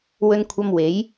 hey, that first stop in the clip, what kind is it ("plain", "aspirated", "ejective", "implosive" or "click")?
aspirated